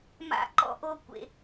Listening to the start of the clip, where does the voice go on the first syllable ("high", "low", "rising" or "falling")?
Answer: high